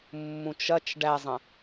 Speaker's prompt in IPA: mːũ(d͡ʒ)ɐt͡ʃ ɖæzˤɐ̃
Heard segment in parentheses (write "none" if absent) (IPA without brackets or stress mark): t͡ʃ